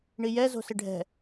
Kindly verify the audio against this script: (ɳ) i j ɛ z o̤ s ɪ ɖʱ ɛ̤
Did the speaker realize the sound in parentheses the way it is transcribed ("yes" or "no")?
yes